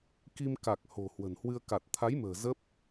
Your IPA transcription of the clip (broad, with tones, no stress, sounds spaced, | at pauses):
k i˧ m k a˨˩ k̚ h o̤˨˩ h w ə̤˨˩ n h w ɨ˧ ə̯ k a˨˩ t̚ t̪ʰ a˨˦ j m ə̤ː˨˩ z ə˦˥ p̚